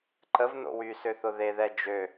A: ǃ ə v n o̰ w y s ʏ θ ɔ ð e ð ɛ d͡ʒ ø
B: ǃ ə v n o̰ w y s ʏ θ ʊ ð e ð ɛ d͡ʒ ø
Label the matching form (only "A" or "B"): B